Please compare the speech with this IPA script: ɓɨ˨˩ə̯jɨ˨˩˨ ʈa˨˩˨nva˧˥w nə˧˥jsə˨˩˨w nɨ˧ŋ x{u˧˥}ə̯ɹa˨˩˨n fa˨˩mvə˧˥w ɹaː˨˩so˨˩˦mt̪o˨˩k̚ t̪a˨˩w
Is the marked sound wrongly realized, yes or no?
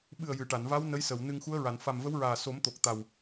no